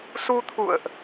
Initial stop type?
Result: aspirated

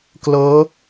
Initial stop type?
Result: plain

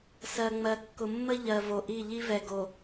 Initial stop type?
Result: plain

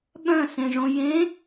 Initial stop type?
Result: implosive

